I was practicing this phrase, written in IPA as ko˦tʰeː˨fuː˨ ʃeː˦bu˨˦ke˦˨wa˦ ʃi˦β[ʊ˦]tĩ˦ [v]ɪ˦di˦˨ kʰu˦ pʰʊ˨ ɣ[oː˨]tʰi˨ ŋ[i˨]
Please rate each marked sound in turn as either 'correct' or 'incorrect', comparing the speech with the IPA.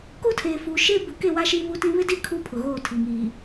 incorrect, incorrect, incorrect, incorrect

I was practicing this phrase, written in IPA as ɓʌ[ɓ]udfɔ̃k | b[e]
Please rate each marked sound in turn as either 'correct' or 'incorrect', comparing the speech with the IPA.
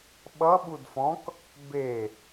correct, correct

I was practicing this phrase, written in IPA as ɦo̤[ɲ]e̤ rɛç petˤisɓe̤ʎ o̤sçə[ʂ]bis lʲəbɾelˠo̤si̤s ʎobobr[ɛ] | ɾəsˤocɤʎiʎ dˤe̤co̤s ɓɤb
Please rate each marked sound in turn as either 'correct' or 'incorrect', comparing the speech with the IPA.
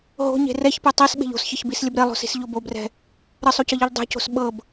correct, incorrect, incorrect

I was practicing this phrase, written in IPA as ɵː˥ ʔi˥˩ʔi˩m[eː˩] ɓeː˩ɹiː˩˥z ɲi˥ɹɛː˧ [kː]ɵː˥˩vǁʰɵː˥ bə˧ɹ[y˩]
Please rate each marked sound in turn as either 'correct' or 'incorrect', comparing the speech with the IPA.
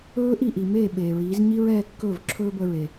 incorrect, correct, incorrect

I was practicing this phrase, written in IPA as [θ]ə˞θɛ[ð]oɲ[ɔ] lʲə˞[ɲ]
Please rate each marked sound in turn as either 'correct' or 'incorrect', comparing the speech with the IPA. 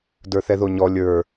incorrect, correct, correct, incorrect

